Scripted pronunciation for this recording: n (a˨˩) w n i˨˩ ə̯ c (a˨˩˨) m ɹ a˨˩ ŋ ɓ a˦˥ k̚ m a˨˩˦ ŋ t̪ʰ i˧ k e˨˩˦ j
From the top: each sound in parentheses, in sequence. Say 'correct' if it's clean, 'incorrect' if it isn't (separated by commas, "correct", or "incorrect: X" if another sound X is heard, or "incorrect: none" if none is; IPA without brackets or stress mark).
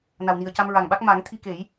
correct, incorrect: a˧